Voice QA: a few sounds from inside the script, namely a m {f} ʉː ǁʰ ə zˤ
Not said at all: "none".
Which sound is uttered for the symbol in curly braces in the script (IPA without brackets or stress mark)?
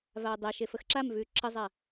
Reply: v